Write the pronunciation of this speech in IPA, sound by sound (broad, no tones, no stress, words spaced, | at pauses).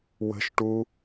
wə̤ʃʈu